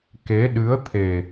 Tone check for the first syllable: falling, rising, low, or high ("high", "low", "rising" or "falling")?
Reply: rising